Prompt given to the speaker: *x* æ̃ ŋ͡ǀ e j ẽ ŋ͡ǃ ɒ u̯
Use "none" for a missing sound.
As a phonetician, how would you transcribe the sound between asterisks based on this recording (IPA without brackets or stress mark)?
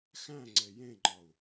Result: x